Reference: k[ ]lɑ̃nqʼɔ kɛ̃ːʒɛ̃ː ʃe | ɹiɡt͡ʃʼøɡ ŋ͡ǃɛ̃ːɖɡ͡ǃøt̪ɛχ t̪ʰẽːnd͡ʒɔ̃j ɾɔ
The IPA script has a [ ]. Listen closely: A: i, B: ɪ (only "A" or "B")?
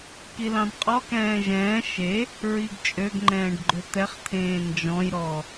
A